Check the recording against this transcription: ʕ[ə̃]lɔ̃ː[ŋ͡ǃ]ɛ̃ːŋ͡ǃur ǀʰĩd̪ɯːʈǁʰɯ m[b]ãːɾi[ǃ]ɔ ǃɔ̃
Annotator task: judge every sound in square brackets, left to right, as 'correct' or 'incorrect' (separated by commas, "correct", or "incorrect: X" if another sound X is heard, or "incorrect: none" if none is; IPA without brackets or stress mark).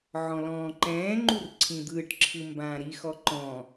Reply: incorrect: ɔ̃, incorrect: ǃ, correct, incorrect: x